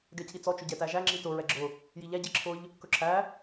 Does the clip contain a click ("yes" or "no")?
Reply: yes